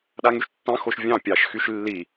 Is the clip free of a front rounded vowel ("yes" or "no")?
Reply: no